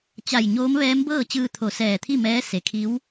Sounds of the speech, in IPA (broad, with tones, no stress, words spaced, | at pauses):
t͡ɕa˧˩jɲoː˧˥mʋɛː˧˥m bɤː˥˨t͡ɕɯː˧ t̪ʰo˧˩sɛː˧˩t̪ʰi˥˨ mɛː˧˥se˩kʰi˧˥w